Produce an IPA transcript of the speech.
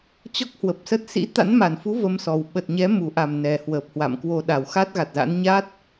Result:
t͡ɕ ɔ˦˥ k̚ h w ə˨˩ p̚ s ə˦˥ t̚ s ḭ˧˥ t̪ a̰˧˥ n m a˨˩ n f u˨˦ v ə˧ m s ɔ˨˩ w ɓ ə˨˩ t̚ ɲ ɛ˨˦ m u˨˩ ʔ a˧˩ m n ɛ˨˩ h w əː˨˩ p̚ h w a̰˧˨ m k w o˧ ɗ a˨˩ w x a˦˥ t̚ ɣ a˨˩ t̚ z a̰˧˥ n ɲ a˦˥ t̚

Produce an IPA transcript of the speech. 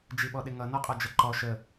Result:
d͡ʒ i ɓ ɔ ɗ ɪ ŋ ʌ n ɔ qʼ ɔ d͡ʒ ʌ ǃ ɔ ʃ ə

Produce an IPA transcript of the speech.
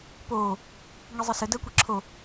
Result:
p oː | ŋ i zˤ ə s ə d əː kʷ i ǁʰ o

